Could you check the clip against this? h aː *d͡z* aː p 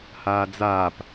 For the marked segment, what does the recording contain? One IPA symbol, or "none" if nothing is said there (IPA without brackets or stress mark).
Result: d͡z